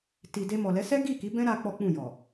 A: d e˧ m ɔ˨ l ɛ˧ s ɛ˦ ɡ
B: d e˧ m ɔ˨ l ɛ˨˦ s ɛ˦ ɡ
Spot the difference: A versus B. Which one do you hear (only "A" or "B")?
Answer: B